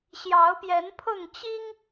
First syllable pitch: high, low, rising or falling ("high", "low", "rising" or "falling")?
rising